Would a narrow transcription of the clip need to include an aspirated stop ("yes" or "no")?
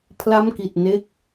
yes